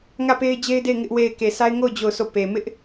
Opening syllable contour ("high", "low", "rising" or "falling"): falling